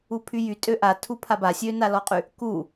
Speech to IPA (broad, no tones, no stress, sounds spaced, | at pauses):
u pʰ y j y tʼ ø ʔ a tʰ u pʰ a b a sʲ ø n a l ɔ qʼ y | k u